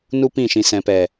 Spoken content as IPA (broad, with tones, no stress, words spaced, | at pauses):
nu˦pĩ˦˨ ʃĩ˨sɛ̃˨pɛ˨